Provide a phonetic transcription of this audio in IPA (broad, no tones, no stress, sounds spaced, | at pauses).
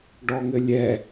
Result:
ɖ ɔ ŋ ɘ lʲ ɛ